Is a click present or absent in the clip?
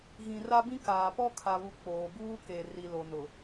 absent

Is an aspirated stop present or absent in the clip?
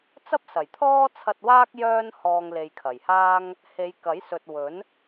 present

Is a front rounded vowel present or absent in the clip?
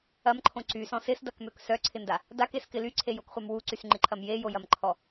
present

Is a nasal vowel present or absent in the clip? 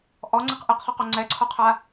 absent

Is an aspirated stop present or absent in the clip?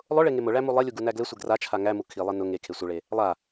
present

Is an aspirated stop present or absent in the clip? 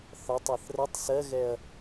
absent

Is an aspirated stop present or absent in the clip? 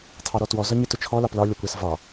present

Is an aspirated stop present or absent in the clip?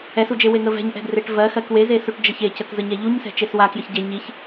absent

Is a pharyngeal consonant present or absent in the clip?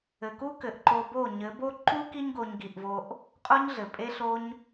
absent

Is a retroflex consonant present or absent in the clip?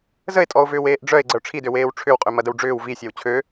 present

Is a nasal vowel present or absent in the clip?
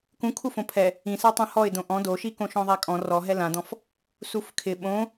present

